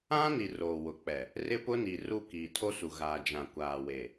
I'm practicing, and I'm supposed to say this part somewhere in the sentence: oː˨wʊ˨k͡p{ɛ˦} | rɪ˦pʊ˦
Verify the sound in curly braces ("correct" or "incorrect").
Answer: incorrect